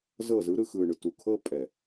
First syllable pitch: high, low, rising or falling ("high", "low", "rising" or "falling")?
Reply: falling